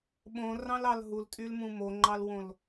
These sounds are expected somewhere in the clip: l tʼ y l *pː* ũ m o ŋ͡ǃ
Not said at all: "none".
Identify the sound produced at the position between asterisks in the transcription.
m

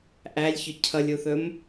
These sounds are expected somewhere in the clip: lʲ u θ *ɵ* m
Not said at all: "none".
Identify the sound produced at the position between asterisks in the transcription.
ɵ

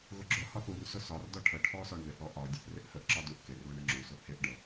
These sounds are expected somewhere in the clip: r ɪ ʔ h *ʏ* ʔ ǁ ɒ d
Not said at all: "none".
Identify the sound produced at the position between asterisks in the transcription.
ə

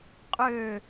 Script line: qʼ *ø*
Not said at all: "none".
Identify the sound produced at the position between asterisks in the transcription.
ø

